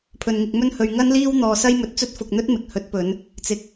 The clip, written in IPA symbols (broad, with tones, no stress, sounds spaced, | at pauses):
pʰ ɵ˧ n ŋ ɪ˧ k̚ m ɵ˥ n h ɵ˧ ɥ ŋ ɐ˥ n l iː˥ w n̪ ɔː˧ s ɐ˥ j m ɵ˧ t̚ t͡s ɵ˥ t̚ f ʊ˧ k̚ n̪ ɵ˥ t̚ m ɪ˨˥ k̚ h ɵ˨˥ t̚ p ɵ˨˧ n | t͡s ɪ˧ k̚